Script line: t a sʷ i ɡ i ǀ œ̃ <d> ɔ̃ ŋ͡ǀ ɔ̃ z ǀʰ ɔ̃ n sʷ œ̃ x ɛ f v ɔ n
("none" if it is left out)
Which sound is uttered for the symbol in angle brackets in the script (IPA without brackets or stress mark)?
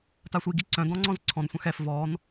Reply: d